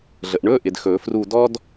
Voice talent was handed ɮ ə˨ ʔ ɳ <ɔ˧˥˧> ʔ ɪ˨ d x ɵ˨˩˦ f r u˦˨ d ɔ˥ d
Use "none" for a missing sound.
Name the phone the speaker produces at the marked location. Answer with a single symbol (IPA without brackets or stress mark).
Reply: ɵ˧˥˧